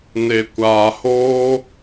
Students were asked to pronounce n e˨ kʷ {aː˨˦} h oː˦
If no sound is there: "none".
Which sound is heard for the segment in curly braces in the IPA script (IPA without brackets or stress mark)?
aː˨